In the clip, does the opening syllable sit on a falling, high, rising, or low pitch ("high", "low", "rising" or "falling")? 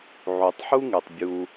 low